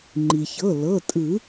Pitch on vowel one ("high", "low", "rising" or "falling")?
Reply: low